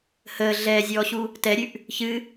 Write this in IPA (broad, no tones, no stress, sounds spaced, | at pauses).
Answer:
h əː ɮ ɛː zʲ ɔː ɕ u | t ɛ ɾʲ ʉ ʔ | ç ɨ